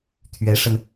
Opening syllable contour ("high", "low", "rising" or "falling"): rising